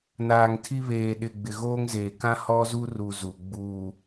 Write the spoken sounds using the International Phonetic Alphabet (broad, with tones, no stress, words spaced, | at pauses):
naː˨ŋtʰi˦ βeː˨ɗɪ˨ ɡ͡bɪ˨ɣoː˦ŋzeː˨ kã˦hɔ˦zu˦ru˨ zu˨ ɡ͡buː˨